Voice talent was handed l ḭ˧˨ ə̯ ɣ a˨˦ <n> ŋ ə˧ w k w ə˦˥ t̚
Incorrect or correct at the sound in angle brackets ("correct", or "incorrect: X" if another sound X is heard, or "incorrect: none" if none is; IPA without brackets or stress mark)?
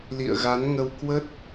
correct